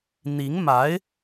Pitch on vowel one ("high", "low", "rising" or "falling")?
rising